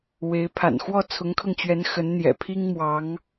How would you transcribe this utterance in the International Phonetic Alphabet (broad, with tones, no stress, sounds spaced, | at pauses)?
w e˧˥ ɪ̯ pʰ a̰˨˩ n x w ɔ˥˩ t͡sʰ ʊ˧˥ ŋ kʰ ɤ˧ ŋ t͡ɕ ɥ ɛ˧˥ n x ə˧˥ n n̪ j ɛ̰˨˩ pʰ i˥ ŋ m w ɑ˧˥ ŋ